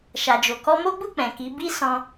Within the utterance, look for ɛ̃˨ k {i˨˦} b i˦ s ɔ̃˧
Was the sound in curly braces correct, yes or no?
yes